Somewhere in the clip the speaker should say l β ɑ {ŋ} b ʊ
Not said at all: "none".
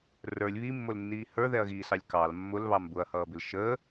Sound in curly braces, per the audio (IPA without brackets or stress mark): m